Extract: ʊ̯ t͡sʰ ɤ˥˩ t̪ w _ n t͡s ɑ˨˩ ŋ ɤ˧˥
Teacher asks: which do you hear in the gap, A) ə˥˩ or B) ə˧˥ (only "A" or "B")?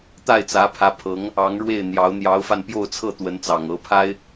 B